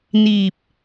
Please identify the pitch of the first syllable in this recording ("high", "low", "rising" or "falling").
low